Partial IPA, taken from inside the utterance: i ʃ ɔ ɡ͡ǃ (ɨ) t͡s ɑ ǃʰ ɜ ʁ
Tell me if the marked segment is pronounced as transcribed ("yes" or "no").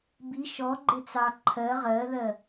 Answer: no